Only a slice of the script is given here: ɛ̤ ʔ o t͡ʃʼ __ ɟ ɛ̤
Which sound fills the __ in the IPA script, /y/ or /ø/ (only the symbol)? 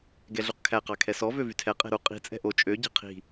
ø